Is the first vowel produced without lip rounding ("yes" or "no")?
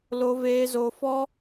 no